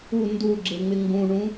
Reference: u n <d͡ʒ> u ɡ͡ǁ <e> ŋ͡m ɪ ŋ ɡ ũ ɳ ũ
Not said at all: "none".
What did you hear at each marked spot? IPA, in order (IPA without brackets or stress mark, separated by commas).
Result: d, e